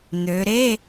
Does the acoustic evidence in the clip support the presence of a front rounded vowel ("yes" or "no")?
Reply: yes